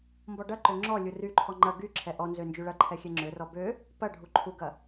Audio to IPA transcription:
mbɔɖɐǃø ŋ͡ǁɔ lʲuryǃʰɔ ŋ͡ǃɐ ɡyǁʰɛ ʔɔnzø nd͡ʒyɭɐǃʰɛ xʲɛŋ͡ǁørɔ bø | pɐɖʱu ǃʰuɡɐ

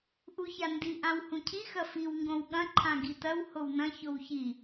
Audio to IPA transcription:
ʔuçandi ʔãwhũcʰi xɐfiw ŋɡõwɠɐ̃ ǃʰãɡitɐw hownɐ̃ çowçi

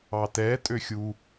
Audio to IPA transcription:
ɑtɛ tʼøxʲu

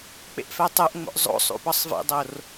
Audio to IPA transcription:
k͡pḛʔfætˤoʔŋ͡mo̰ʔ zˤo̰ sˤṵpɒsˤvḛdˤor

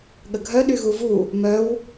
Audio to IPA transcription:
ɠəɡʱœ ɗyɣuvu | mœw

